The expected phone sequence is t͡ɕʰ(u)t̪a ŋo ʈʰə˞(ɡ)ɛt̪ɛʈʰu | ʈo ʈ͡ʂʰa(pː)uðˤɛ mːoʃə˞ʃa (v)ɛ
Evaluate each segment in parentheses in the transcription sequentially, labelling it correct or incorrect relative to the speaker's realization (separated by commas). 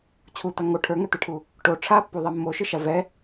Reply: correct, incorrect, correct, correct